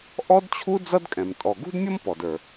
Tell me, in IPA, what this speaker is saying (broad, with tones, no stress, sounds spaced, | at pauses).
ʔ ɔ˥ d t͡ɕʰ u˥ d͡z ʌ˥ d kʼ ɛ̃˩ m tʼ ɔ˩ ɡ ṳ˥ d mʲ ʌ˥ m p ɔ˩ d ə˞˩